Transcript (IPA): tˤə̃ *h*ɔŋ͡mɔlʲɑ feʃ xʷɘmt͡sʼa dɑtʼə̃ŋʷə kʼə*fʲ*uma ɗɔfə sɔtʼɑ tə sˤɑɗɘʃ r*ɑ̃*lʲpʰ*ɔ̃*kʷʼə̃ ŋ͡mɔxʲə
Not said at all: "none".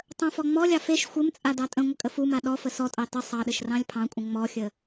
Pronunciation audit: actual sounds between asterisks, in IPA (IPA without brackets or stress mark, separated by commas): f, f, ɑ̃, ɑ̃